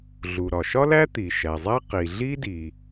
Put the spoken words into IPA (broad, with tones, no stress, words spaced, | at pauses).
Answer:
ɮu˩ɾɒ˩ʃɒ˥læ˥ t̪i˩ʃæ˩zˤæ˥ qi˩ɮi˥di˩